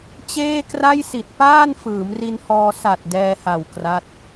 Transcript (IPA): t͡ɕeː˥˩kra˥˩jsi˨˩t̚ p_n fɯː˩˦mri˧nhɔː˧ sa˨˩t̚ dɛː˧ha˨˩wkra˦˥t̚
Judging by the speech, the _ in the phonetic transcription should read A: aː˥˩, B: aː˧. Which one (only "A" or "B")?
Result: A